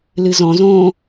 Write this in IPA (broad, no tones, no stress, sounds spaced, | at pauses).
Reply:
l ɨ z ɔ̃ z õː